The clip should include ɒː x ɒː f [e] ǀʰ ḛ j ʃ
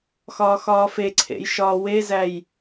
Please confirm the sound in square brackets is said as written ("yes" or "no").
yes